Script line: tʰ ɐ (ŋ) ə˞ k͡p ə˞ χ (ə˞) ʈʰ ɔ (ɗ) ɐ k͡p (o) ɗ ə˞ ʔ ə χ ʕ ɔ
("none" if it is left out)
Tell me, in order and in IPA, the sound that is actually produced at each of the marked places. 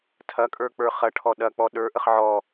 kʼ, ɐ, ɗ, ɔ

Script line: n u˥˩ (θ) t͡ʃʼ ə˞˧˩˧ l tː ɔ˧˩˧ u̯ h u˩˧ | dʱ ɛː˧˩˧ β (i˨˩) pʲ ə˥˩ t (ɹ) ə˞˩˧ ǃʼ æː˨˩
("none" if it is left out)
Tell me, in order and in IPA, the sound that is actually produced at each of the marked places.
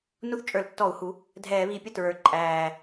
θ, i˨˩, ɹ

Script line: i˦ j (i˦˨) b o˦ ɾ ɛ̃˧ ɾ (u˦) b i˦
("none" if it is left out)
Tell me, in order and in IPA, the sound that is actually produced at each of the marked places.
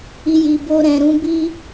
i˧, ũ˦

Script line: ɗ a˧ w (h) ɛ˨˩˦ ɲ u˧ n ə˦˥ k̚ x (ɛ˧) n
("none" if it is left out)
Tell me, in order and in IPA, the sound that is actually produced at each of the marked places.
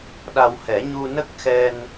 h, ɛ˧

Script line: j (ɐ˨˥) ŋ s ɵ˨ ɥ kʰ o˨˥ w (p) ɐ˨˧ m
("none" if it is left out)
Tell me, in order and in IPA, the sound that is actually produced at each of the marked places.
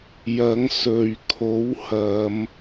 ɐ˨˥, h

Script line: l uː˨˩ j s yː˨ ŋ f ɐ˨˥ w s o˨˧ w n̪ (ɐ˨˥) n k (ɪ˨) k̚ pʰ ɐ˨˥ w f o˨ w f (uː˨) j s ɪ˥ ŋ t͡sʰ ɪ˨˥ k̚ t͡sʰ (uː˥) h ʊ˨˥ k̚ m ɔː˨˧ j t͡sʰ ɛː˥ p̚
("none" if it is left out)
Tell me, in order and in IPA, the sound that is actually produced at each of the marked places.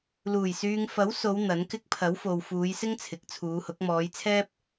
ɐ˨˥, ɪ˥, uː˨˧, uː˨˧

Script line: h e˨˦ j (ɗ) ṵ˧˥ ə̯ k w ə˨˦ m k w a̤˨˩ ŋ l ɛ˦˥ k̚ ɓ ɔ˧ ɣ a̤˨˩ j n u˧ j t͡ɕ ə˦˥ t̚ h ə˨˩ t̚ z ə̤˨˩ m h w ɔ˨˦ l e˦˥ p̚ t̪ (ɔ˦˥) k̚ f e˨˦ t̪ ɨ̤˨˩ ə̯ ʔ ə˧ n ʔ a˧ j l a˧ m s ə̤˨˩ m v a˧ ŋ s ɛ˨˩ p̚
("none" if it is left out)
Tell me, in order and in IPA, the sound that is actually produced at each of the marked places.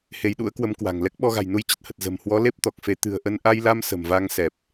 ɗ, ɔ˨˩

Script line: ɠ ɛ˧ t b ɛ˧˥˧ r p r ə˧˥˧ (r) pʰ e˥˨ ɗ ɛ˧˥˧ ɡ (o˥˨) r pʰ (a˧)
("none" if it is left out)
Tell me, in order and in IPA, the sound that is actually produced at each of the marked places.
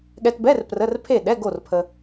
r, o˥˨, ə˧

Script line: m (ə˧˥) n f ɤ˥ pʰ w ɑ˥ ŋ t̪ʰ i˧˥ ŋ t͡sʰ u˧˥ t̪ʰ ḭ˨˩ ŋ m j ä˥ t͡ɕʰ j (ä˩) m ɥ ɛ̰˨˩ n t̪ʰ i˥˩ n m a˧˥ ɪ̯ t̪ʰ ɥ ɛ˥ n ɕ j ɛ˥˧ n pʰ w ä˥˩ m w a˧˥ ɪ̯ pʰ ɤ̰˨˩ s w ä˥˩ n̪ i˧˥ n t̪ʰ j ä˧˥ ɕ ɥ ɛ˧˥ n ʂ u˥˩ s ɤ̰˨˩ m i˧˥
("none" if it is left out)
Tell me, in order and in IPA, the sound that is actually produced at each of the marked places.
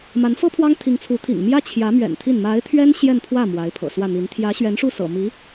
a˧˥, ä˧˥

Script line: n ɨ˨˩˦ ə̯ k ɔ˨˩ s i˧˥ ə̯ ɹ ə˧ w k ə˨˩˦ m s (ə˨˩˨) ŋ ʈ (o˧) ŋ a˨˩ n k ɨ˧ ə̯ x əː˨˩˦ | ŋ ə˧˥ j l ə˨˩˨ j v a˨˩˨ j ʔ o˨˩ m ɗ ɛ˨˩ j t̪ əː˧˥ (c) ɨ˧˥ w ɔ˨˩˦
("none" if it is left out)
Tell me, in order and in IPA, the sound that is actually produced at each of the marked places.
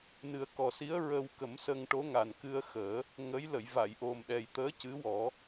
ə˧, o˧˥, c

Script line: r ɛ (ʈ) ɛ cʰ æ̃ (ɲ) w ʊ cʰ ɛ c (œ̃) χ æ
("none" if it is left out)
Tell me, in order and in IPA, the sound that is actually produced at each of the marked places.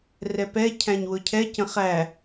p, ɲ, ə̃

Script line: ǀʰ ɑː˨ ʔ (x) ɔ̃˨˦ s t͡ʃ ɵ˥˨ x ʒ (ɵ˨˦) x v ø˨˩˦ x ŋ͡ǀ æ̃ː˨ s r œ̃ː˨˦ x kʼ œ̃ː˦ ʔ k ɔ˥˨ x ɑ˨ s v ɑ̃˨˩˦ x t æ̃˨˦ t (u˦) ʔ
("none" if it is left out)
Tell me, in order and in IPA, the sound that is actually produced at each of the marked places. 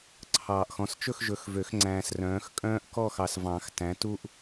x, ɵ˨˦, u˦

